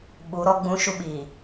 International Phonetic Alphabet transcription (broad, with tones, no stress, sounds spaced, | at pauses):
ɓ u˨˦ ɾ ɔ˦ ɡ͡b ũ˦ ʃ u˦ ɓ iː˨